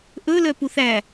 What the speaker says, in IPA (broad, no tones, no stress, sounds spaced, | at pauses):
ʔ ɵ l œ p u θ æ